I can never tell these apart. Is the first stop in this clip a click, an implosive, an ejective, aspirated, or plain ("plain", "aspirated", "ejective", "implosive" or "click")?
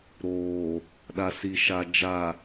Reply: implosive